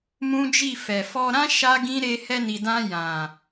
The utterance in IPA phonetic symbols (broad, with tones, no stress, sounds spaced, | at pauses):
m ũ˦ d͡ʒ i˦˨ f ɛ˨ f ɔ˧ ɾ ã˦ ʃ a˦ ɡ ĩ˦ ɾ e˧ h ɛ˧ n i˨ d ã˧ j ã˨